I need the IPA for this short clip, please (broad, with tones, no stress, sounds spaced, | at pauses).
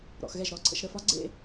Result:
ɾ ɔ̰˩˧ x ɣ ɛ˥˩ ʒ ɾ ɔ˧˩ ǀʰ ə̰˩˧ ʃ ɾ ə˥˧ f ɒ˦˥ ɡ͡ǀ ḛ˥˧